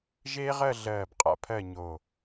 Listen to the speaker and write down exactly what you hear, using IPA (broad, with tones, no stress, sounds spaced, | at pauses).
ʒ eː˥ ʁ ɜ˥˧ ɮ ɜː˧˩ b qʼ a̰˥ pʰ ɜ˥˧ ɲ o˧˩